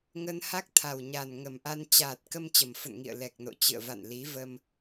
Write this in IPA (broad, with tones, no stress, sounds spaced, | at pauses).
ŋ ə˧ n h a˦˥ k̚ t̪ʰ a˨˩ w ɲ a˨˩ n ŋ ə˨˩ m ʔ a˧ n t͡ɕ aː˨˩ t̚ k ə˧ m t͡ɕ ə˨˩ m f ə̰˧˨ n ŋ ḭ˧˨ ə̯ l ɛ˨˩ k̚ n o̰˧˨ t͡ɕ ɨ̰˧˨ ə̯ v a̰˧˨ n l i˨˦ v ə˧ m